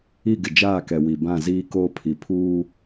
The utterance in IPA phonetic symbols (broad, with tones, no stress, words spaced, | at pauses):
i˦˨ɡɪ˨ d͡ʒaː˦˨kɛ˨ wi˨ bã˦˨ziː˦koː˦ pʰi˨pʰuː˦